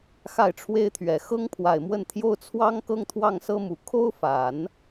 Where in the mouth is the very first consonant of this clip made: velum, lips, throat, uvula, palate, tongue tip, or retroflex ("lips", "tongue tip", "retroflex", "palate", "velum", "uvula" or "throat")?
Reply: velum